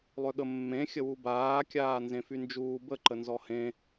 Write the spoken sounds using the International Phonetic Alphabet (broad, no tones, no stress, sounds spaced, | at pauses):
lˠ ø ɠ ə mː ẽ xʲ ə w u b aː kʲ aː n z ẽ f y n d͡ʒ uː b ə ǃ ə n z ɔ h ẽ